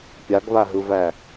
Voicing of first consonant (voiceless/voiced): voiceless